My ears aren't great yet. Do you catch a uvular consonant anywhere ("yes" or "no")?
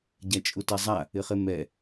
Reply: yes